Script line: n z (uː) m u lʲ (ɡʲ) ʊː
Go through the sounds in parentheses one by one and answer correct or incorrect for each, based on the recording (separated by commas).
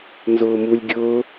incorrect, correct